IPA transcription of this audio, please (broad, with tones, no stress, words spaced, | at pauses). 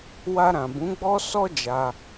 wa˧ɾã˨ bũ˨˦ɡ͡bɔ˦sɔ˦ d͡ʒa˧